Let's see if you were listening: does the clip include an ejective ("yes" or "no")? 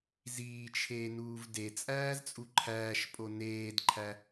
yes